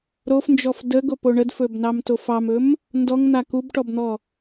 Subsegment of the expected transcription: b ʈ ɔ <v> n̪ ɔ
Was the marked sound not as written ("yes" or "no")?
yes